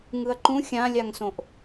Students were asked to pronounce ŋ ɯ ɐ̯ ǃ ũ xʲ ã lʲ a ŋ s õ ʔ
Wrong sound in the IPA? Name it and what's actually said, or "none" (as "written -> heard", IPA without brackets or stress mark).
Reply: none